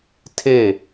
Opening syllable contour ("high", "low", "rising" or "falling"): falling